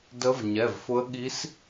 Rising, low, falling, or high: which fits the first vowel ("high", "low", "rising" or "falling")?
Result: rising